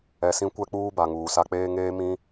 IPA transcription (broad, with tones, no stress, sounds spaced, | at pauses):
ɛ˨ s ĩ˦ kʷ ɛ˦ k͡p uː˦ b a˨ ŋ uː˨ s a˦ k͡p eː˦ ŋ eː˦ m ĩ˦